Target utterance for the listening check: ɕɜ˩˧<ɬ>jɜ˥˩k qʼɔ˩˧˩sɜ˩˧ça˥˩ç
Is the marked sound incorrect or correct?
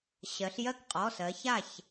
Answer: correct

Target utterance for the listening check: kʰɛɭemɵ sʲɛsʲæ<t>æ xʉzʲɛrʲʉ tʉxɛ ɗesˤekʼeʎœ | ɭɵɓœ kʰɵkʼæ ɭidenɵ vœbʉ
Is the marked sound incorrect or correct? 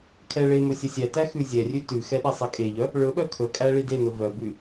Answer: correct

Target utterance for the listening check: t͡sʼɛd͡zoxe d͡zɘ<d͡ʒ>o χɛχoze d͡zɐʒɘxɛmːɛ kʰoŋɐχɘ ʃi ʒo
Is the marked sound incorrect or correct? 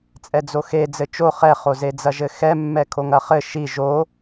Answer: incorrect: t͡ʃ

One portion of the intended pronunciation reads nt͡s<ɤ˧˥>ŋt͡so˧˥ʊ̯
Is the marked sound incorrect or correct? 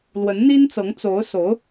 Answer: correct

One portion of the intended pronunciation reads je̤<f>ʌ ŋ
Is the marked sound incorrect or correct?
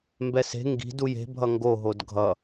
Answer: incorrect: bʱ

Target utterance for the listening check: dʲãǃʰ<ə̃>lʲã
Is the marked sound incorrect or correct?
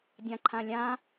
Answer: incorrect: ã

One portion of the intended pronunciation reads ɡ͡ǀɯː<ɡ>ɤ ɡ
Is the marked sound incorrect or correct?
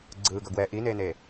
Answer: correct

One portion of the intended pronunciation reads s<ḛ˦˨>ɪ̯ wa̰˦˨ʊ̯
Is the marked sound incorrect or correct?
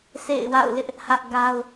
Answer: correct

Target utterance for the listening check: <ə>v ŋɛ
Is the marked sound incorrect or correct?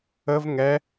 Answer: correct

